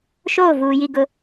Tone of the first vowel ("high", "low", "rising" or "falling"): falling